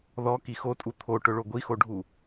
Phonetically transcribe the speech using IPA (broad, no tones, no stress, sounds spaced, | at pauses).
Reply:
ð ɔ k i x o tʼ u t̪ʰ o ʈ ʊ ɭ o ɡʷ i x o ɖʱ u